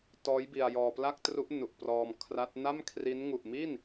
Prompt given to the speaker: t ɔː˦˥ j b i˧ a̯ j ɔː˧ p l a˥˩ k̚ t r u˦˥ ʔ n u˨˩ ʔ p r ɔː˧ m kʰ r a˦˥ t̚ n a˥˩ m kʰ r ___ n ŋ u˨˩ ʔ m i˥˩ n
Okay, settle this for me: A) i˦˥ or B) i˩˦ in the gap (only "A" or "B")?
A